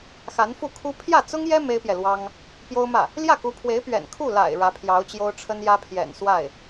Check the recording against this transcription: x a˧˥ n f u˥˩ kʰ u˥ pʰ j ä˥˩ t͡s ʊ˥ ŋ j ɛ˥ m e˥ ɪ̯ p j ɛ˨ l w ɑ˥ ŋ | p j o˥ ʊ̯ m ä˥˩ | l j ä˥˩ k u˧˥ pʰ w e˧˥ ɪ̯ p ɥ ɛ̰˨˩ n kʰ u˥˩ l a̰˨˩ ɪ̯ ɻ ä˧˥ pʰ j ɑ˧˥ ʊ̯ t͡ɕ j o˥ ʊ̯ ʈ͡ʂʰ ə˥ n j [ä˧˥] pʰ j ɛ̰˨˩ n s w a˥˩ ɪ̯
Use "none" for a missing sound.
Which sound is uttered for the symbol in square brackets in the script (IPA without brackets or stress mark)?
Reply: ä˥